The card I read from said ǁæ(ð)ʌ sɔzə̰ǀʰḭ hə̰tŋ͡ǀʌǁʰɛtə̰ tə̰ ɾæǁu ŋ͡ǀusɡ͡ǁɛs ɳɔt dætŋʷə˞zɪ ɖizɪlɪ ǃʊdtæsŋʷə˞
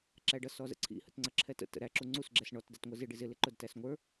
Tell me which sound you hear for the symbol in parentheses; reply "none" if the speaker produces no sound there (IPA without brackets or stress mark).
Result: ɖ